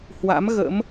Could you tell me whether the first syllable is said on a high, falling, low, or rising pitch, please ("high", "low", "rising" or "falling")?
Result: rising